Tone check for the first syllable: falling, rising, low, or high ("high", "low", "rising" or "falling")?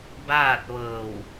falling